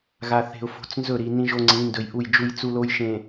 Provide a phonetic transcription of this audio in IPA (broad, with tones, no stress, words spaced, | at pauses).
ɣa˨θe̤˨ʊ̯fo̤˨˦t͡s nzɵ˦˨ɾi˨ nĩ˦ʒo˦ŋ͡ǀĩ˨˦ ndɵ˨jʔu˦˨jd͡ʒu˦jt͡su˦ lo˦jʃẽ˨